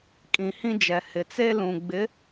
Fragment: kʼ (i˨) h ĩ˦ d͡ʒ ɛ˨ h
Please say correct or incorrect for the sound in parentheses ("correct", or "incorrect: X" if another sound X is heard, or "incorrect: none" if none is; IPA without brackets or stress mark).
incorrect: ĩ˨